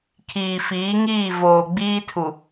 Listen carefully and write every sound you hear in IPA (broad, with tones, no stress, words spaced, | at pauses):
kʰiː˨fiː˨˦ŋiː˦˨ voː˨ɡ͡biː˦tʰu˨